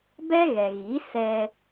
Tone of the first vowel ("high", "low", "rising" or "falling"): high